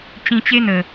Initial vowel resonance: nasal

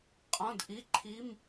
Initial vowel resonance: nasal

